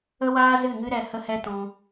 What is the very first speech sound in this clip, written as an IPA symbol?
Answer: ə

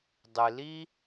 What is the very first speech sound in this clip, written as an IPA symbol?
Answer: dˤ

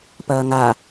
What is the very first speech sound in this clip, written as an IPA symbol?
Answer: p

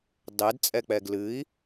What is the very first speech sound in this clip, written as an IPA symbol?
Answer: dˤ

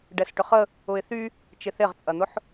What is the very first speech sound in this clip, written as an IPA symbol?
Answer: ɖ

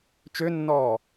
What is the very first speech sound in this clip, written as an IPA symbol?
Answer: t͡ʃ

